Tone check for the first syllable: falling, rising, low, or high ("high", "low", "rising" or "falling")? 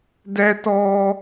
high